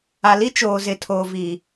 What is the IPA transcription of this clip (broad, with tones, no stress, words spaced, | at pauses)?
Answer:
a˨li˦ t͡ʃoː˨zɪ˨tʰoː˨ vi˨